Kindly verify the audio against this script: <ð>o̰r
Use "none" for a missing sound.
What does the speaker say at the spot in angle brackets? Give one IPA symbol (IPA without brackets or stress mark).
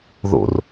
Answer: ð